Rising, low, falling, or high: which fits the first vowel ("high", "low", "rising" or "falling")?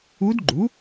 rising